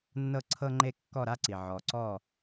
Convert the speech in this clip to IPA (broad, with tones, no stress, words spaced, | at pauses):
nːɤ˦ǀʰɤ˦ŋ͡ǃe˦ kːɔ˦˨ɾa˦ǀi˨ ʕɔ˨ǀɔ˦˨